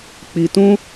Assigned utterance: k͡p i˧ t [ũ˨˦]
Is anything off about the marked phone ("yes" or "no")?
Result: yes